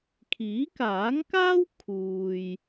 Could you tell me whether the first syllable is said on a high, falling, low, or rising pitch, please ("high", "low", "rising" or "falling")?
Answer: rising